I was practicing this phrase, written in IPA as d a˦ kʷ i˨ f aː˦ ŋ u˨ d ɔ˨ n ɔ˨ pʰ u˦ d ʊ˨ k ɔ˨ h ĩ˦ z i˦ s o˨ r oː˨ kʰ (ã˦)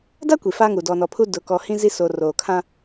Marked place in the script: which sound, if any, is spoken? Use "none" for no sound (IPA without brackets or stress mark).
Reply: ã˦